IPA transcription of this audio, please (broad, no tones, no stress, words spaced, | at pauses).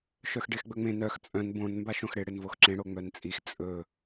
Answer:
ʃœxɖexɡ͡bɵŋ͡mẽ nœx t͡sʼœ̃n bõn mbaʃõxɽɪ ɽɪnvoxǁẽ ɽoŋ͡mœnt͡sʼix t͡sʼɵ